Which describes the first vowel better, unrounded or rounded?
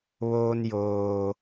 rounded